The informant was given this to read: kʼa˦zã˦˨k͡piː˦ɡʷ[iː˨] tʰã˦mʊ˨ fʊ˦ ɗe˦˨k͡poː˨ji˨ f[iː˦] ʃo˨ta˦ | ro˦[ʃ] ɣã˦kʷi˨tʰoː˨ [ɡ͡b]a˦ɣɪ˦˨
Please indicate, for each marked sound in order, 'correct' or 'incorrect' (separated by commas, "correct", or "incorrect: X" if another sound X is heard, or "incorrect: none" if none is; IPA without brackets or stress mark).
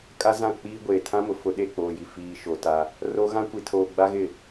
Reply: incorrect: eː˨, incorrect: iː˨, incorrect: none, correct